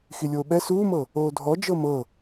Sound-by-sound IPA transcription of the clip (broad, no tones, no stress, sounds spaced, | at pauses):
x i lʲ oː ɓ ɛ s uː m ɤ | oː dʱ ɔ d͡ʒ ɤ m ɤ